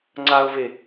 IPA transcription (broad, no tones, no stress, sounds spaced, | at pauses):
ŋ͡ǀ a ʊ̯ v e